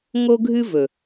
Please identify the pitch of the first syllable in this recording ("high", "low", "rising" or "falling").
high